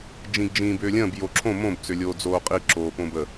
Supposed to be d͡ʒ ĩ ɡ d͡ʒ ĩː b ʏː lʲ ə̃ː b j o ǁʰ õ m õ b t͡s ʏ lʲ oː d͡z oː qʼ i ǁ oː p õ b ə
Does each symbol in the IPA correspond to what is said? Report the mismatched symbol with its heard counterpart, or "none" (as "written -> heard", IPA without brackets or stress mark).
none